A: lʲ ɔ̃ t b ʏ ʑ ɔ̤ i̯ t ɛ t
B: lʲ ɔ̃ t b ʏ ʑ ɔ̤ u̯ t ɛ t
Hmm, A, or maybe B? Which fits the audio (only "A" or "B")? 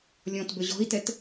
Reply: A